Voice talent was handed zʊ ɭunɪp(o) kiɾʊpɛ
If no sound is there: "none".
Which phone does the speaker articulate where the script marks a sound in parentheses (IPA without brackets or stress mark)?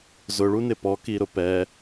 ɔ